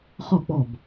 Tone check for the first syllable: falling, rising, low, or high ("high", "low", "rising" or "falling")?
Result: falling